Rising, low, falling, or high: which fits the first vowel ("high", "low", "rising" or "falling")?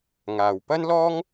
low